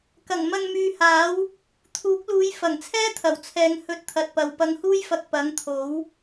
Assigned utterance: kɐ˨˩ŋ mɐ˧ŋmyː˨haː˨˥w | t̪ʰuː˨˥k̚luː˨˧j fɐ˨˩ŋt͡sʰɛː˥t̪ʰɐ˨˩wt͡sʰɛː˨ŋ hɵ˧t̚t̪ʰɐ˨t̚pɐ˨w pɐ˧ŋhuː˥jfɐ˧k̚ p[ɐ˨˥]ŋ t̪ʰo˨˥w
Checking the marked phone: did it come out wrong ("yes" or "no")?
no